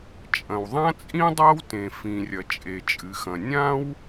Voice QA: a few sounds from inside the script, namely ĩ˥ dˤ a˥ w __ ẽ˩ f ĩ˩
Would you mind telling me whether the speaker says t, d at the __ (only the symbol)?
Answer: t